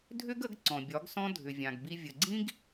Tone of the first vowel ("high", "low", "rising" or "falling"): high